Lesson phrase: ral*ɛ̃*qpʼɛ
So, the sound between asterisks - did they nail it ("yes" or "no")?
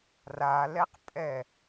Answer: no